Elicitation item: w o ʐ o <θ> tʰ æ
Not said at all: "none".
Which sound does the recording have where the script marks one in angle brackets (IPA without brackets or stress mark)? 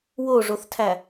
θ